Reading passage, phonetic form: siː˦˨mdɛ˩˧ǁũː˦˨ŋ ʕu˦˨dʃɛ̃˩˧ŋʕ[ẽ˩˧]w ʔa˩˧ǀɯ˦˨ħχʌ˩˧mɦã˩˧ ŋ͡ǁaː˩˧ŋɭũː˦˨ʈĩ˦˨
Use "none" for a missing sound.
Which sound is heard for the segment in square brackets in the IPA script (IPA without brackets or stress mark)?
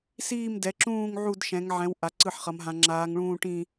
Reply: ɛ̃˩˧